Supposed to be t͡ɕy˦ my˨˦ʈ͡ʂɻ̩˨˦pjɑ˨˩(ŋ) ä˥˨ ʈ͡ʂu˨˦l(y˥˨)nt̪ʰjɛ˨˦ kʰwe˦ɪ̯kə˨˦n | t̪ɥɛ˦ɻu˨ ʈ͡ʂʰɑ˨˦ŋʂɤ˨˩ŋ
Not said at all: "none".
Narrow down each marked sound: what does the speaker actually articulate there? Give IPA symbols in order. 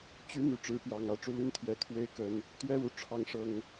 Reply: ŋ, y˥˨

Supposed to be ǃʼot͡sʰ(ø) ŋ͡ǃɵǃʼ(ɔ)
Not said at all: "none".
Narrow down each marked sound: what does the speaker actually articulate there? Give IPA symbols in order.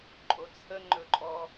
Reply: ə, ɔ

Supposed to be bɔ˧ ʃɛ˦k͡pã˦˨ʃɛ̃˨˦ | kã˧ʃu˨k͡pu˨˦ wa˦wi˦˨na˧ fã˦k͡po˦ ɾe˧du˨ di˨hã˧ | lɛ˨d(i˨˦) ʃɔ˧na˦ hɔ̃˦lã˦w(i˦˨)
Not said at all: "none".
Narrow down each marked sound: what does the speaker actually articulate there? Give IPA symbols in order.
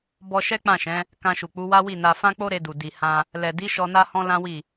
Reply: i˨˦, i˦˨

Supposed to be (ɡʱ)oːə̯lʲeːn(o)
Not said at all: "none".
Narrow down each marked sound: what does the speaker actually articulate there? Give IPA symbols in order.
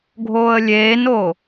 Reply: ɡʱ, o

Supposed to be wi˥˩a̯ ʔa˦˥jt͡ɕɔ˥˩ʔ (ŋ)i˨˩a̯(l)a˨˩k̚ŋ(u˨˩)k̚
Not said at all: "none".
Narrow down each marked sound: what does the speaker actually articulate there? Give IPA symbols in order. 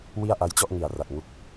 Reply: ŋ, r, u˦˥

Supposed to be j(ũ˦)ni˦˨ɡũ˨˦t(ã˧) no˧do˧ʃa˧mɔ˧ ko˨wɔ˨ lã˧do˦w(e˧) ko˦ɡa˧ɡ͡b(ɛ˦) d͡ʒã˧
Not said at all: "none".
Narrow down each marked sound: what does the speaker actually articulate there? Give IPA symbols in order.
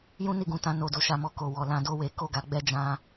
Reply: ũ˦, ã˧, e˧, ɛ˦

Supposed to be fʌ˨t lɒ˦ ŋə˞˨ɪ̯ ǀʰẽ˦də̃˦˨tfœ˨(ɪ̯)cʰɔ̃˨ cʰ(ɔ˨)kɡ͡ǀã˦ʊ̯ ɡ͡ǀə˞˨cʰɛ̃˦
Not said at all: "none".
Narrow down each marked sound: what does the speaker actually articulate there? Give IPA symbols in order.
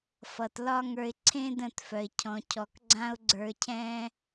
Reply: ɪ̯, ɔ˨

